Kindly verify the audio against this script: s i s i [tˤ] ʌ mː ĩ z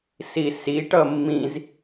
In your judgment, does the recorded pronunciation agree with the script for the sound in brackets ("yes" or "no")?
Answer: no